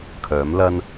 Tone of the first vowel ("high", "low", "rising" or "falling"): rising